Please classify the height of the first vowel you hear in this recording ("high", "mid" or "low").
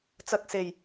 low